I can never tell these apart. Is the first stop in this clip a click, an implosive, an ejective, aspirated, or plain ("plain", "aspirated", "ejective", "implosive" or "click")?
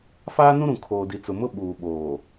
aspirated